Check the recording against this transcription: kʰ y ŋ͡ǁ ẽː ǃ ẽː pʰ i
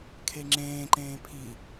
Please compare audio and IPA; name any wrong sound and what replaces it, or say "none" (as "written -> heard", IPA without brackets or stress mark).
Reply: y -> e